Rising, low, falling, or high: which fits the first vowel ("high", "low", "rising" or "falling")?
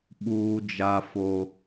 high